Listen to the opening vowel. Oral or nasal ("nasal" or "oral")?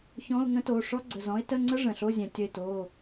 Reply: nasal